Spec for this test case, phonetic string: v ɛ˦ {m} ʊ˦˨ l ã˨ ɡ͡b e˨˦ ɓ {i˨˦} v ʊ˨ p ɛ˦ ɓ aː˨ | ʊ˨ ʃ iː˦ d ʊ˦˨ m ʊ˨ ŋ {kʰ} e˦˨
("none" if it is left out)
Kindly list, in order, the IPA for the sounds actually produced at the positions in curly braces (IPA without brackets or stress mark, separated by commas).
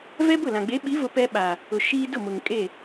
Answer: b, i˨˦, kʼ